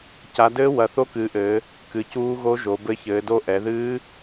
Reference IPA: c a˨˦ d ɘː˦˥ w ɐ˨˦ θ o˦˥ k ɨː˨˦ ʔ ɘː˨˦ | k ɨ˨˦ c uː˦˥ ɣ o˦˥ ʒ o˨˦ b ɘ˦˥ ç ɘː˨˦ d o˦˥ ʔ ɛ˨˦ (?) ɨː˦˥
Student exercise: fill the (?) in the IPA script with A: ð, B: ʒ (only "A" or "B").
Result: A